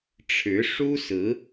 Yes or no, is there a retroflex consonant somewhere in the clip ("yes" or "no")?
yes